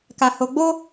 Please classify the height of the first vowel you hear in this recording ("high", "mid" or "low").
low